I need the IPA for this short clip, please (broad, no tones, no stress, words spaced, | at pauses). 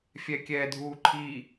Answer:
fʲɛkʲɛːdʱuːǃʰi